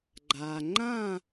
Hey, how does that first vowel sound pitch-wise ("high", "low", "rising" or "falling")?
low